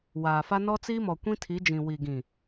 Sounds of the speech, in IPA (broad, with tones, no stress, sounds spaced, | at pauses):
w aː˨ f a˦ n ɔ˦ t͡s i˦ m ɔ˨ kʷ ĩ˦ tʰ i˨˦ d͡ʒ ĩ˨ w i˨ ɡ ĩ˨